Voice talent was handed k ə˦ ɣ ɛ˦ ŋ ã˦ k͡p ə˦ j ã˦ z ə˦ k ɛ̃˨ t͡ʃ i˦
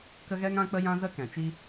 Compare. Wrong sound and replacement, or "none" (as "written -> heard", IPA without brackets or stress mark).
none